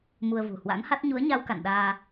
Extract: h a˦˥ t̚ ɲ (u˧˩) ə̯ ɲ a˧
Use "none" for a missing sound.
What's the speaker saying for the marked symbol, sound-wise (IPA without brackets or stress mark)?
u˨˦